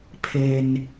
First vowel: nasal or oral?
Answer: oral